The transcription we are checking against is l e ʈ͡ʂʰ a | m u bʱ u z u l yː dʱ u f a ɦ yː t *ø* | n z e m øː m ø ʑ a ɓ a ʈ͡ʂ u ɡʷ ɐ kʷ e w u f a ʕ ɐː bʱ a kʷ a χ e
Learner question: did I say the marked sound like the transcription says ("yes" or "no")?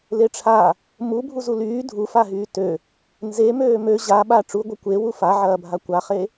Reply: yes